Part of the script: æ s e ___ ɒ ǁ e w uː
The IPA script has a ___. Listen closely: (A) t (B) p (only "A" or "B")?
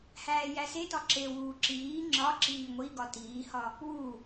A